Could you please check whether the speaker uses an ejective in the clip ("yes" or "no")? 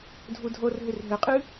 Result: yes